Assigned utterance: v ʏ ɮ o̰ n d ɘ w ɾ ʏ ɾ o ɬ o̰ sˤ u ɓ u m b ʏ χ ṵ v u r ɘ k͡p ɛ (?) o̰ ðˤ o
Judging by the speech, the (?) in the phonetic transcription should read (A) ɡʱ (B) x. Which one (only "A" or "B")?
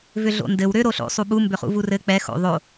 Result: B